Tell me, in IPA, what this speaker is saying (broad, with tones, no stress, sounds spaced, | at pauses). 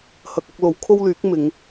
h ɐ˧ k̚ ɐ˥ k̚ l o˨˥ w kʰ o˥ w l yː˨˥ k̚ m ɪ˨˧ ŋ